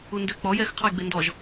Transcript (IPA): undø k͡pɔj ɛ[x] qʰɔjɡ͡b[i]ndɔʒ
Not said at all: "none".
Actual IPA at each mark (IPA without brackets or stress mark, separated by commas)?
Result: x, e